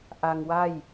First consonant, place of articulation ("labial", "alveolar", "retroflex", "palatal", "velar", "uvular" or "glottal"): glottal